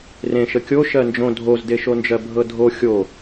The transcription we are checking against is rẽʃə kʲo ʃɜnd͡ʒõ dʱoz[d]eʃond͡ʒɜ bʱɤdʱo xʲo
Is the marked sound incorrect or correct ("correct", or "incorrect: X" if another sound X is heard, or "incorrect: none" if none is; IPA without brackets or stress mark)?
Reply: correct